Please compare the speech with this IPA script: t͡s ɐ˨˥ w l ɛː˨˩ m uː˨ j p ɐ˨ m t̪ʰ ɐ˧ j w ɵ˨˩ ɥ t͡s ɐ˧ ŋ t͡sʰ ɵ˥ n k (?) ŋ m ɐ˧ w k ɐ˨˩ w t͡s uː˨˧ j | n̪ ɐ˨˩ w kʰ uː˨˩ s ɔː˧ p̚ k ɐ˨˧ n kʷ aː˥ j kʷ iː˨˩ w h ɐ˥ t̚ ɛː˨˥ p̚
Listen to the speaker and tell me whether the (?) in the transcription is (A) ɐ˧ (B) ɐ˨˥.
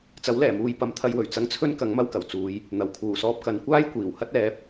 B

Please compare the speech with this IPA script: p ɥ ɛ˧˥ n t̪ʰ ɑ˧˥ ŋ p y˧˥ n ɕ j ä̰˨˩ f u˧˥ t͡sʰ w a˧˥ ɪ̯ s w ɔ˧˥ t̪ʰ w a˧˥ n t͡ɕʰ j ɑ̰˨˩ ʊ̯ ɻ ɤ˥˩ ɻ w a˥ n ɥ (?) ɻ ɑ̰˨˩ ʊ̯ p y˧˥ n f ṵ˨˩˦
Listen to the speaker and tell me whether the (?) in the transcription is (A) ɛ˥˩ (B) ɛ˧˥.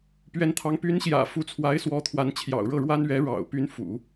B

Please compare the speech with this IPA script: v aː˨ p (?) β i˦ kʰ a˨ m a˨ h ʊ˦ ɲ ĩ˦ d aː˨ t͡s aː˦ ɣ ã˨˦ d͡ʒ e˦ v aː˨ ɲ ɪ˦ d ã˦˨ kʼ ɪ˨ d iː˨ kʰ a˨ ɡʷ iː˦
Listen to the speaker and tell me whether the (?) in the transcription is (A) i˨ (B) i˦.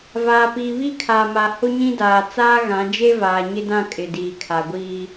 A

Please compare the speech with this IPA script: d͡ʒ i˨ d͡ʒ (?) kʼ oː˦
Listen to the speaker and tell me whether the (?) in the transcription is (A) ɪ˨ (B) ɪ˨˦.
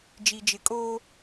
B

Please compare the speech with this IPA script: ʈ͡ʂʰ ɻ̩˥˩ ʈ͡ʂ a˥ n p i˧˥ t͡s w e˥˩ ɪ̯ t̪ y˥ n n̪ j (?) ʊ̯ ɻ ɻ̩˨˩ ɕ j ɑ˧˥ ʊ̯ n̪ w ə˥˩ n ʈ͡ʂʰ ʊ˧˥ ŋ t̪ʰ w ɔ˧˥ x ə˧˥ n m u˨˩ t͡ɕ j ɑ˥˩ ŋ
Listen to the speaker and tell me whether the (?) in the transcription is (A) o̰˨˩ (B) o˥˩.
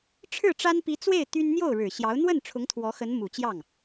B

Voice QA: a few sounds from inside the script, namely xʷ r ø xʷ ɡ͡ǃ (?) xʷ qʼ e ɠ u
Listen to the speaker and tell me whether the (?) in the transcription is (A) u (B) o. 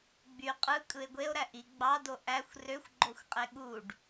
B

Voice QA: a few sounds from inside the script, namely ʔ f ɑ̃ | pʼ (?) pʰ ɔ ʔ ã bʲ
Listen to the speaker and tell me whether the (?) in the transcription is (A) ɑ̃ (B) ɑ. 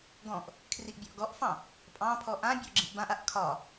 A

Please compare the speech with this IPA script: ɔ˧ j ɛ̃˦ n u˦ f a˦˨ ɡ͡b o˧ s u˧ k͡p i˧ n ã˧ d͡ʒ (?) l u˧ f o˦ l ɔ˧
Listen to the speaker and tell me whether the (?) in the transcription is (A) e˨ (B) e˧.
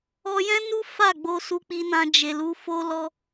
A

